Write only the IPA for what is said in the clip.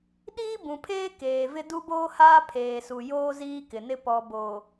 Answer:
ɗiː˦bũ˨pʰeː˦ keː˨vɪ˦ du˦boː˦haː˦ pʰeː˨su˨joː˦ ziː˦kɪ˨nɪ˦ pɔ˨bo˨

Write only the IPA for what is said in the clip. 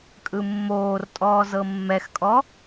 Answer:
kʼɯmːoːrtʼɔː zɤmːɛxkʼɔ

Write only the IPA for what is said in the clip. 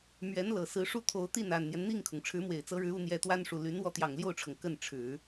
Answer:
mɥɛ˧˥nlɤ˨˩ sɹ̩˧˥ʂu˥˩t̪ʰo˧˥ʊ̯ t̪i˥˩na˨˩nn̪jɛ˦n n̪i˥˩ŋkʰʊ˩ŋ ʈ͡ʂʰɻ̩˧˥mwe˨˩ɪ̯t͡sɤ˧˥ɻɻ̩˧˥ u˥ n̪jɛ˧˥t̪wa˥nʂu˨˩ ly˧˥n wɔ˥˩t̪jɑ˨˩ŋljo˥˩ʊ̯ʈ͡ʂʰɤ˩ŋ kə˥˩nʈ͡ʂʰɻ̩˨˩˦

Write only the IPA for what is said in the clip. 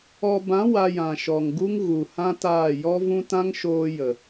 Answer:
ɔ˧ bã˨˦ wa˧jã˨ʃɔ˨ŋɡu˦ŋ ɣu˨ hã˦taː˦˨ jɔ˦vũ˦ tã˦ŋʃoː˧ jə˨

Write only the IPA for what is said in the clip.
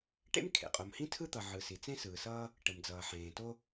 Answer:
ʈḛ˥m kʰḛ˩qʼo˩mhĩ˥ tʰɯ˥t̪ʌ˩ʕɯ˩ si˩ t͡sẽ˥ sɯː˩sʌː˥ | ʈə˩m d͡zʌː˩ħẽː˩ to˥

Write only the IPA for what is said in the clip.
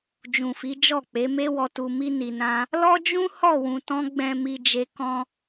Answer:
d͡ʒũ˨fi˨˦d͡ʒɔ˦˨k͡pe˨˦ me˧wɔ˨tu˨ mi˧ni˨nã˧ | lɔ˦d͡ʒũ˦ hɔ˦˨wũ˨tɔ̃˧ ɡ͡bɛ̃˨mi˨ d͡ʒe˧kɔ̃˦

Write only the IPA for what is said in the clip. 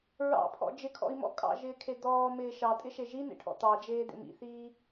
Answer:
ɹɑ̰pʰɔ̰ d͡ʒɪkʰɔ̰i̯mɔ̰ kʼɑ̰ʒɪːkʰe d̪ɔːmɪː ʃɑtʼɪʃe ʒinḛʈʰɔ̰ t̪ɑd͡ʒeːd̪ḛm ḭθiː

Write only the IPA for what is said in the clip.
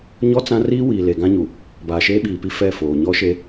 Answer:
ɲɔ˦ t͡sã˦ riː˦ wiː˨le˨ɡã˦ɲu˨ | baː˨ʃeː˦ɓiː˨pi˦ fɛ˦˨foː˨ ɲɔ˦ʃe˦

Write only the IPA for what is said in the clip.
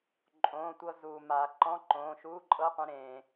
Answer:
ǃʼõː˩˧˩tʷɤ˧ zuː˩ ma˩ ǃɔ̃˧˥˧ǃõː˩˧˩ʃuː˧˥˧ǃʼɤ˧˥˧ qʷẽ˧ɾẽː˩

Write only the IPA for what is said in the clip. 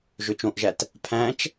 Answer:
ʒøt͡ʃõʔʒæt | pʰæ̃t͡ʃ

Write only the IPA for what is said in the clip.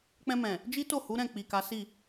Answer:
k͡pɛ̃˧mɛ̃˨ | d͡ʒi˦to˦˨ hu˨˦ɾɛ̃˦˨ k͡pi˨ka˨˦ si˦˨

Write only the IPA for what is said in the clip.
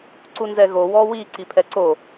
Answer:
ǀunzɛɣo wɔwi ǀipʰɛǀo

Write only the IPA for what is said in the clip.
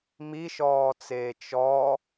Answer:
miʃɔːt͡seː t͡ʃɔ

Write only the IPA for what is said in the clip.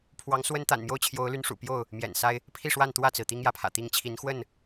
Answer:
pʰwɑ˨˦ŋ swə˦nt̪a̰˨˩nmjo˥˨ʊ̯ t͡ɕʰjo˨˦ʊ̯ly˨˦nʂṵ˨˩ pjo˥˨ʊ̯ | mjɛ̰˨˩nsa˦ɪ̯ | pʰi˥˨ʂwa˥˨nt̪wä˥˨t͡sɹ̩˩ t̪i˦ŋjä˨˦pʰä̰˨˩t̪i˥˨ŋ t͡ɕʰi˨˦nxwə˥˨n

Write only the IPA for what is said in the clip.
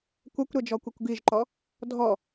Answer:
kʷɛkʷɾɛd͡ʒɔkʷikʷ ɡiʒǃɔ | dʱɔ

